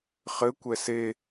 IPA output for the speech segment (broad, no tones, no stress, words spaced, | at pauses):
χɘ kʷɛse